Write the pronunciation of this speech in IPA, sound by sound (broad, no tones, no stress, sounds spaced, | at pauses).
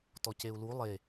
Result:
t ɔ c e u̯ l u lˠ e